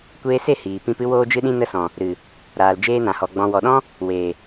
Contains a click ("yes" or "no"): no